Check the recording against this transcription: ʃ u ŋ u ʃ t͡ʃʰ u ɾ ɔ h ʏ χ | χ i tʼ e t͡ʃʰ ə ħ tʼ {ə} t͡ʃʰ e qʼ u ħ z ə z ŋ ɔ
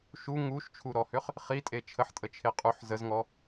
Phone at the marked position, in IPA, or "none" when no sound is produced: ə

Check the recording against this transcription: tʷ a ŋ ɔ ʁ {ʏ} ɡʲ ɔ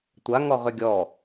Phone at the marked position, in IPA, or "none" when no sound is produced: ʏ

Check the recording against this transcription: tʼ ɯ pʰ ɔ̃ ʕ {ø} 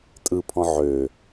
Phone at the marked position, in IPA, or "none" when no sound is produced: ø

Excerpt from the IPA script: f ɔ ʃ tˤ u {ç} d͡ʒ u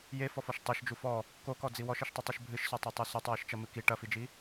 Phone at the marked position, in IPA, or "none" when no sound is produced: ʃ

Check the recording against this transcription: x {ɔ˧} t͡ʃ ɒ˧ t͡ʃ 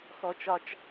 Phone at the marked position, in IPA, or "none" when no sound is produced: ɔ˧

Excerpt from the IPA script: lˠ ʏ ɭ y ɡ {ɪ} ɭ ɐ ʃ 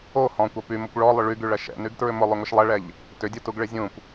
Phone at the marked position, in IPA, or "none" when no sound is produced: y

